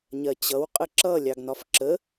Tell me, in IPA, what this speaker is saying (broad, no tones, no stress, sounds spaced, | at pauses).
ɲ ɜ t͡ɕ ʌ w qʼ ə ǁ ʌ lʲ ɑ ɡ n ɒ f ǁ ə